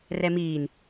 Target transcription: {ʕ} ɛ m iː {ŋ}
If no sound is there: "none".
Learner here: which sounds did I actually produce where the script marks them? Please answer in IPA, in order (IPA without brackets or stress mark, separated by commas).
r, n